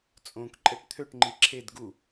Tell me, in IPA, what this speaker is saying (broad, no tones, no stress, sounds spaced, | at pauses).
t͡sʼ õ k ǃʼ ɛ ʈ t̪ʰ ø ʈ ŋ͡ǃ i ǁʰ e d ɡ u